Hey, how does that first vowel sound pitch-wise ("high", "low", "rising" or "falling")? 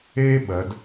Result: high